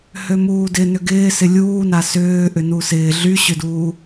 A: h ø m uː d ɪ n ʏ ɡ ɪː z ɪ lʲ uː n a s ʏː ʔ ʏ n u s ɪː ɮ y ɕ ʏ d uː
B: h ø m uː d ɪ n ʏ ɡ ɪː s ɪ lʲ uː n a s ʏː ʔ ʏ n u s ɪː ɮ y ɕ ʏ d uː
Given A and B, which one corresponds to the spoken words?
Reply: B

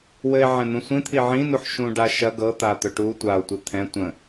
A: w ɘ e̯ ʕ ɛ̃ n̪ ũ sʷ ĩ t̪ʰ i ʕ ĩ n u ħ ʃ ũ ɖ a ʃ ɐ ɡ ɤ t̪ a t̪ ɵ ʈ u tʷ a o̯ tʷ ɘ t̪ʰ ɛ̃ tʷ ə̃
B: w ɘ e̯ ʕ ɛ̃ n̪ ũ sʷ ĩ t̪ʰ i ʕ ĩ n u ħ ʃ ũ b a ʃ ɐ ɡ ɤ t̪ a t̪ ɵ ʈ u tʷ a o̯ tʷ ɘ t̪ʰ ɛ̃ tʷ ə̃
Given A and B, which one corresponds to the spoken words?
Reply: A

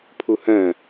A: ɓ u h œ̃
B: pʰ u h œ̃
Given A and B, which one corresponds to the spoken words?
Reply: B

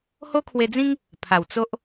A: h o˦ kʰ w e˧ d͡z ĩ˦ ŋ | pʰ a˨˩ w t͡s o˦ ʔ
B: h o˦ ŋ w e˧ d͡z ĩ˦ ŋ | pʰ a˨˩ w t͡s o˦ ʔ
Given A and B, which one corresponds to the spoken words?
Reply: A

